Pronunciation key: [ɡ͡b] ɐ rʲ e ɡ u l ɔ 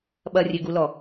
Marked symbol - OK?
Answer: no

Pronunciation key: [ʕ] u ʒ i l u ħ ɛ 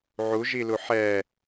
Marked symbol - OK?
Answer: yes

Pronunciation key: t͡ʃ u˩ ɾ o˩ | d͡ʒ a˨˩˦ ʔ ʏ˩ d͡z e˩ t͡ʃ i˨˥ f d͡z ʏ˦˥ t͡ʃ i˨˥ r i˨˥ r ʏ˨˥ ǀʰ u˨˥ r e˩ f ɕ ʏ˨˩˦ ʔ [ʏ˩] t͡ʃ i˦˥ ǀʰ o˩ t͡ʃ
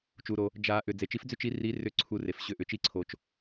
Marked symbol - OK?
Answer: yes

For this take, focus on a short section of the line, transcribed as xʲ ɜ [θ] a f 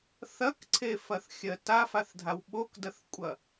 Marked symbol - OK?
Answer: no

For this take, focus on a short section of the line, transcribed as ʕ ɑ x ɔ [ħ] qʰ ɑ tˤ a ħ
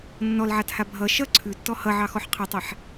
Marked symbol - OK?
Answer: yes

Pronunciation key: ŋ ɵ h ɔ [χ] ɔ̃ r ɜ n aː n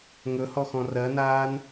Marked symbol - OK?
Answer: no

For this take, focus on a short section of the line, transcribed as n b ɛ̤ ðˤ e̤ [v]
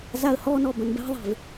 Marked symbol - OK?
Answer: yes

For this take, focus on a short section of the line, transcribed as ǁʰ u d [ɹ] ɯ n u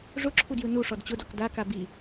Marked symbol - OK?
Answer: no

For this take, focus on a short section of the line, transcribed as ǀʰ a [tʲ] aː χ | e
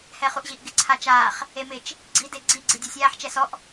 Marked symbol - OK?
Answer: no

